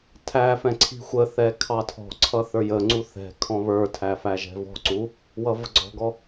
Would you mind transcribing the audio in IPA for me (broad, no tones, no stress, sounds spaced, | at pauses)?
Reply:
tʰ æ f ɛ̃ ǀʰ i̤ xʷ ə θ ɛ kʰ ɑ tʰ ɔ̤ ǀʰ ʌ θ ə˞ j ə ŋ͡ǀ u θ ɛ̤ kʰ ɔ̃ β ə˞ tʰ æ f æ ʒ ɛ̤ v ɔ̤ ǀ u | w ʌ v ə ɡ͡ǀ ɔ̤ ɡ ɔ